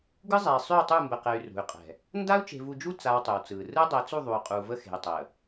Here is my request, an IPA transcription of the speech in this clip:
ɡ ɯ˦ zˤ ɛ˨ i̯ sˤ y˦˨ w tˤ u˦˨ m b ə˨ q ɛ˨ y̯ r ṳ˨ y̯ qʼ ɛ̤˨ | n d a˦ u̯ t͡ʃ e̤˨ v u˨ d͡ʒ u˦ t͡s a˦ w tˤ ʉ˨ w t͡s ɯː˨ r ɯ˦ dˤ ɛ˨˦ t͡s u˦˨ ðˤ u˨ y̯ qʼ u˨ v ə˦ x e̤˨ y̯ tˤ əː˨

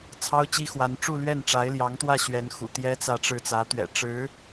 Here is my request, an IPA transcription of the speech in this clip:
t͡sʰ ɑ˥ ʊ̯ t͡ɕ i˥ x w a˧˥ n ʈ͡ʂ u˥˧ l ɥ ɛ˥˩ n ʈ͡ʂ a˧˥ ɪ̯ l j ɑ˧˥ ŋ t̪ w ä˥˩ ɕ ɥ ɛ˧˥ n x ṵ˨˩ t̪ j ɛ˥ t͡s ä˥˧ ʈ͡ʂ ɻ̩˥˩ t͡s ä˧˥ t̪ ɥ ɛ̰˨˩ ʈ͡ʂ ɻ̩˧˥

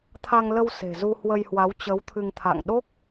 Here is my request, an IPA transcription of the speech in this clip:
t̪ʰ a˧ ŋ l ə˧ w s e̤˨˩ z u˧ h w ə˧ j h w a˨˦ w t͡ɕ ə˨˦ w t̪ʰ ɨ˧ ŋ t̪ʰ a̰˧˨ ŋ ɗ o˦˥ k̚

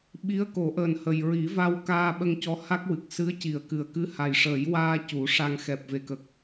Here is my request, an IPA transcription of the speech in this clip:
ɓ i˧˥ ə̯ k o˨˩˦ ʔ əː˨˩ n h ə˨˩ j ɹ i˨˩˦ v a˧ w k aː˧ ɓ ə˧ ŋ c ɔ˧˥ h a˦˥ k̚ w ɨ˨˩ k̚ s ɨ˧˥ ə̯ c i˨˩˨ ə̯ k ɨ˨˩ ə̯ k ɨ˧˥ h a˨˩ j ʂ əː˨˩˦ j w aː˧ c u˨˩˦ ʂ a˧ ŋ x ɛ˨˩ p̚ v e˨˩ k ə˨˩ k̚

